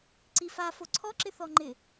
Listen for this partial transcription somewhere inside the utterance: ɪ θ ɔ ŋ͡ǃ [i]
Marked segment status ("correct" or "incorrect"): incorrect